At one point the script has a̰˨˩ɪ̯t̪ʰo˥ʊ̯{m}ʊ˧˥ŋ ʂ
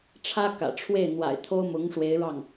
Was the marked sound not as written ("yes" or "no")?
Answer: no